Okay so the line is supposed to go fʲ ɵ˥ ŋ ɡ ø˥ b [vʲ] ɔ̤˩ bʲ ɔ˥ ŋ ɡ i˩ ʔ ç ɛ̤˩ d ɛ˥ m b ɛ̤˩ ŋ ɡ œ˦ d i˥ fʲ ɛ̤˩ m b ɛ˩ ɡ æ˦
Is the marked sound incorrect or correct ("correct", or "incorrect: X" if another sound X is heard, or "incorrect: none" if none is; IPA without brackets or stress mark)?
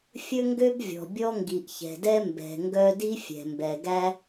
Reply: correct